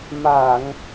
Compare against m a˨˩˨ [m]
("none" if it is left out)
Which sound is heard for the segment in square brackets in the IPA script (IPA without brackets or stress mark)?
ŋ